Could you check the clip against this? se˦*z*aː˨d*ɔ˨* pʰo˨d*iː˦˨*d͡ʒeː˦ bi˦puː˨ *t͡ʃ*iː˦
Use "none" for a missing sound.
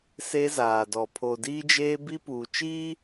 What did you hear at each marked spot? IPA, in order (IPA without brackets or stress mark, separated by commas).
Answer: z, ɔ˨, iː˦, t͡ʃ